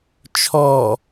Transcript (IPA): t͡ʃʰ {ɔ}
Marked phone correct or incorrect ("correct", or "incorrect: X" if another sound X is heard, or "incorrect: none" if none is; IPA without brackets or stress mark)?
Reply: correct